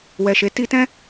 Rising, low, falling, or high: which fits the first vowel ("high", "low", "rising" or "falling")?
low